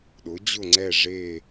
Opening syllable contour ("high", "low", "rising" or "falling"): rising